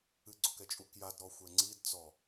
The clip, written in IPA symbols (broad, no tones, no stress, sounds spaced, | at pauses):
ɨ ɡ͡ǀ o k ɛ t͡ʃʼ u k j a d ɾ ɔ xʷ ɛ ŋ͡ǀ i d t͡s ɔ